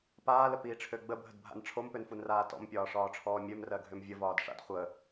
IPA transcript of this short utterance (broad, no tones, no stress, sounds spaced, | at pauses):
p aː l ə p iː ʈ͡ʂʰ ø ɡ͡b ə bʱ ə d bʱ a̰ n ʈ͡ʂʰ o m p ø n f u n r aː t ɔ̰ m pʲ ɒː ʂ ɒː ʈ͡ʂʰ ɔː mʲ ø m r ɜ ɡʱ ø m vʲ ə v ɒː d ʂ a̰ d χʷ ə